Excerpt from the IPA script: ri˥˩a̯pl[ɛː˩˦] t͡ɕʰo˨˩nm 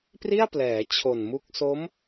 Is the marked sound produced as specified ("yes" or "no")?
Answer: yes